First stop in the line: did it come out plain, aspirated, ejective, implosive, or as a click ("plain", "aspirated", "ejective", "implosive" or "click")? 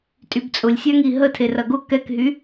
ejective